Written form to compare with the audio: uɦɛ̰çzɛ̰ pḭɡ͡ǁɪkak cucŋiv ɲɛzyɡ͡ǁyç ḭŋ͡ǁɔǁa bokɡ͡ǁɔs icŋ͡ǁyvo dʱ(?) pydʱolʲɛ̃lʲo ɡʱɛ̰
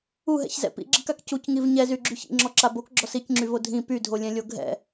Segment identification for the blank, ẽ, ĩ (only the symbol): ĩ